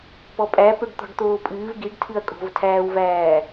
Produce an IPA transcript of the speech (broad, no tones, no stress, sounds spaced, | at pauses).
p ɔ pʼ æ p ø ɖ t̪ ɔ̤ ɖ t̪ oː pʼ ɨː v ɡ i ɖ tʰ ɨ ɐ̯ kʼ o̤ v tʰ æː w v æː